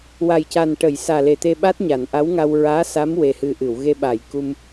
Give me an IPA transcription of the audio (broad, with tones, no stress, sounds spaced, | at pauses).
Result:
w a˨˩ j c a˨˩ n ʈ ə˨˩˨ j s aː˨˩ l e˨˩ t̪ e˧ ɓ a˦˥ t̚ ɲ a˨˩˨ n ʔ a˧˥ w ŋ a˧ w ɹ aː˧˥ s a˧˥ m w e˧ h ɨ˧ ʔ ɨ˨˩˨ w ɣ e˧ ɓ a˨˩˨ j k u˧ m